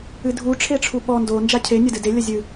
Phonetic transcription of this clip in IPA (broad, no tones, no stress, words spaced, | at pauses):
ɨdʱu ʈ͡ʂʰeʈ͡ʂʰuɓɔ ndo nd͡ʒacʰe nʲɐdɨde lʲɐzʲɨ